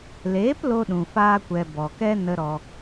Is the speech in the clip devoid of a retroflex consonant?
yes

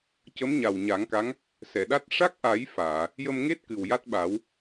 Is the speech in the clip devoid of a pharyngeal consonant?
yes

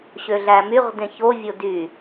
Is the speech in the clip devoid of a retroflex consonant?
yes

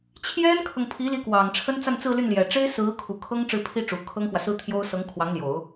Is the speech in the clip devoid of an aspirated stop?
no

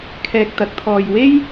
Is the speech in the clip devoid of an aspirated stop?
no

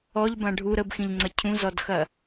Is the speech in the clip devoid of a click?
no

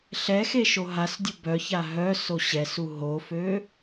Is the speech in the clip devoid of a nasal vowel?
yes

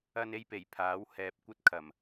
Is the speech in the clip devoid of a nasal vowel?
yes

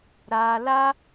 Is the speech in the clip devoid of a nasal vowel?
yes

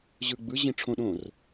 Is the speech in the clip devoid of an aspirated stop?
no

